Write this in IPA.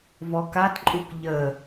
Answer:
vɔkatǃʼuk ʎə

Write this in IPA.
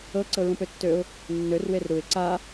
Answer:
ɤ ǀɤɹũpøtːøʊ̯ | nːør werɾuɪ̯ ǀa

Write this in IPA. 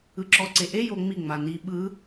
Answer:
ɯǁɔǀeʔe joŋ͡mi ŋ͡mani ɓɯ

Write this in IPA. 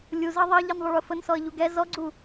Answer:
lʲuzɜ ðˤɜʎinðˤʊ ɭʊfənsɔə̯ ʎuɡɛ zɔɡ͡ǀu

